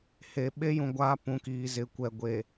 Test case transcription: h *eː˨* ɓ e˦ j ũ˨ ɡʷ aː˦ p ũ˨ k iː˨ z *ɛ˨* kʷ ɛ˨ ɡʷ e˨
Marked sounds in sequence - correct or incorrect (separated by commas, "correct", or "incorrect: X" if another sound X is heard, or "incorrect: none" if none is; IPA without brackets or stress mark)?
incorrect: e˨, incorrect: ɪ˨